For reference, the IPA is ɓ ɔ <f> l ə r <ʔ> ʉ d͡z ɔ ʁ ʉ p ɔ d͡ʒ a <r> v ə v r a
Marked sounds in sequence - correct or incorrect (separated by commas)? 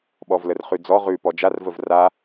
incorrect, incorrect, correct